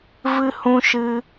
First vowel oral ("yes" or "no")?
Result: yes